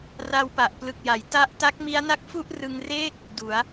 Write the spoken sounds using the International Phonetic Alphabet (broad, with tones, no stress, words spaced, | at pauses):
ra˧wpa˨˩ʔplɯ˨˩k̚ja˩˦j ta˥˩ʔ ta˦˥k̚mi˦˥a̯na˥˩k̚fu˥˩ʔ rɯ˧ŋreː˥˩k̚ | du˩˦a̯